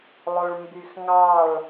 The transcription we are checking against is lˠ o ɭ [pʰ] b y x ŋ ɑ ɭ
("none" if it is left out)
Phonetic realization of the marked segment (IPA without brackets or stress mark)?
m